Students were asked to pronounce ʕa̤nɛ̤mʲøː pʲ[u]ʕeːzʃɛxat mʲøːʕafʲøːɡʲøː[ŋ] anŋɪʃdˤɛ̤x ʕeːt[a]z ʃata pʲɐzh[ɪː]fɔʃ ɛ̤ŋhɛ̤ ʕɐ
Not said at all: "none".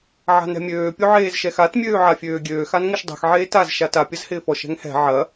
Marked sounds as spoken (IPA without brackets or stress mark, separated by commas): o, x, a, ɪː